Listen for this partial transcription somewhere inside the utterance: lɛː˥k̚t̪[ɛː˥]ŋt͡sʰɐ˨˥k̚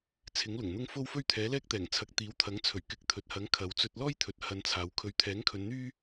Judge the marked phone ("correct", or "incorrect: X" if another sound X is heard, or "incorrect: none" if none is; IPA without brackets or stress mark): incorrect: ɛː˨˩